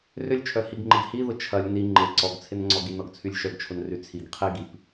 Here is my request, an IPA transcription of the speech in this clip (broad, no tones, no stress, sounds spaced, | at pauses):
r ʏ lʲ t͡ʃʰ œ h i ɡ ŋ͡ǃ ɪ ɡ h i ð ʊ t͡ʃʰ ɐ lʲ n i ŋ͡ǃ ɪ ǀ ɔ ɡ t͡sʰ ɪ n ŋ͡ǀ ɔ ɡ i n ɔ ɡ t͡sʰ y lʲ ʃ œ ɡ t͡ʃʰ ʊ n r y t͡sʰ i ɡ qʰ i ɡ i p